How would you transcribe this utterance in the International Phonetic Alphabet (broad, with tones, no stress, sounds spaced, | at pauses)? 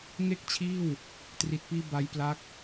ŋ e˥˩ k̚ t͡ɕʰ iː˥˩ w | t r i˨˩ t̚ p iː˧ b a˦˥ j p l a˦˥ k̚